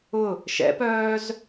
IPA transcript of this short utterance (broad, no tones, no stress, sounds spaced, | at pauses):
ʊ | ʃ ɛ̰ p œː z